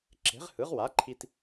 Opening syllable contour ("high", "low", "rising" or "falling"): rising